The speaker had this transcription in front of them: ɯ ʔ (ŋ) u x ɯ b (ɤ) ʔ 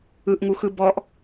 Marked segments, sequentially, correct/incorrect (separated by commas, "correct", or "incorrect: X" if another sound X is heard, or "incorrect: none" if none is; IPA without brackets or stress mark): correct, incorrect: ɔ